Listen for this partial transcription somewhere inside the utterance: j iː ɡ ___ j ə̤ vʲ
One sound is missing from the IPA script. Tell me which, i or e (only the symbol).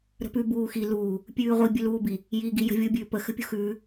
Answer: i